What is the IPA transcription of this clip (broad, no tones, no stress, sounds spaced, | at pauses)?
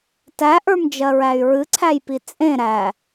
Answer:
t æ ʔ ə˞ m d͡ʒ ɜ ɹ æ y̯ ɹ ɨ ǀʰ æ j p i t͡sʼ ẽ ɾ æ